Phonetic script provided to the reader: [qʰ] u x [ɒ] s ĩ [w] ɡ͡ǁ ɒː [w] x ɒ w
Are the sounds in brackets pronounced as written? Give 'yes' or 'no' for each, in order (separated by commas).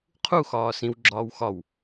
yes, no, yes, yes